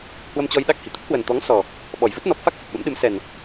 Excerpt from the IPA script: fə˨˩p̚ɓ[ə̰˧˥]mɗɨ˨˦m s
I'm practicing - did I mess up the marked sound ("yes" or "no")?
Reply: no